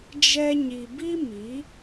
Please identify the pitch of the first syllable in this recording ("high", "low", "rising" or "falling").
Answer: high